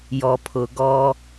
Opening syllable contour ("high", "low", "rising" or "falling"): low